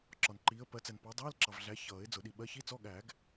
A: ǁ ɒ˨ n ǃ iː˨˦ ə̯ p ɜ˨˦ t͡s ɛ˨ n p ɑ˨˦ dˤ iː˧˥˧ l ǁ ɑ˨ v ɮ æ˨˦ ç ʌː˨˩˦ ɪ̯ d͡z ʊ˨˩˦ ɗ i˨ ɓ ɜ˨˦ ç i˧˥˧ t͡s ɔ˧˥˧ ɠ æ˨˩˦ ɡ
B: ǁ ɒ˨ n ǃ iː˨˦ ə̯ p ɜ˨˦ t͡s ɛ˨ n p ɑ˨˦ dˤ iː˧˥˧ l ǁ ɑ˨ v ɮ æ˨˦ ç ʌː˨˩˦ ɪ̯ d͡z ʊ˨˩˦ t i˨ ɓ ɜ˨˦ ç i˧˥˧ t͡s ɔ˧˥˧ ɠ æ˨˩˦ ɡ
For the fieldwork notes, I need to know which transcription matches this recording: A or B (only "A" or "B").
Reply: A